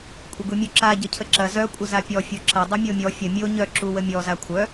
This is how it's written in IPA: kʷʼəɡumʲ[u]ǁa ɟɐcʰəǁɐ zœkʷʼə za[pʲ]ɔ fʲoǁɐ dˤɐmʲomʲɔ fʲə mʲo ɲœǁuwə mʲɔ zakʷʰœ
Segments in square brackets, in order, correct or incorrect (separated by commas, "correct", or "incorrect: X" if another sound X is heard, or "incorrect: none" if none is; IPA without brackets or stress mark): correct, correct